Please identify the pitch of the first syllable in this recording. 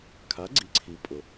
rising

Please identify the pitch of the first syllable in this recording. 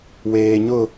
low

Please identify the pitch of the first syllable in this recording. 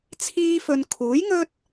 high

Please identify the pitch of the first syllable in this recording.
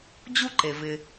high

